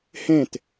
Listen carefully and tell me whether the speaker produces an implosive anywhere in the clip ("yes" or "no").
no